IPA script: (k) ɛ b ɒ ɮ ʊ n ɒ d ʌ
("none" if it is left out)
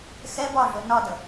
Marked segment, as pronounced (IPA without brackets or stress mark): x